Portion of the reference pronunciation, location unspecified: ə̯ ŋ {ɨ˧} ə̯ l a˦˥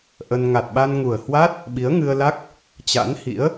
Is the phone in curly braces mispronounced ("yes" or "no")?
no